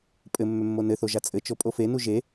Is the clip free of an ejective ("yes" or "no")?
no